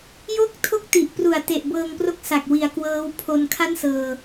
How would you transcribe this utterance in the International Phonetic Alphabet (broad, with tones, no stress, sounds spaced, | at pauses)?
j o˦˥ k̚ tʰ o˥˩ k̚ t i˨˩ ʔ p r u˨˩ a̯ t e˨˩ ʔ b ɤː˧ ŋ p r o˦˥ k̚ s a˨˩ k̚ w i˩˦ a̯ k w ɤː˦˥ w pʰ o˧ n kʰ a˥˩ n s ɤː˧